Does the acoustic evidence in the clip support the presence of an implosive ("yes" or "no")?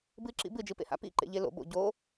no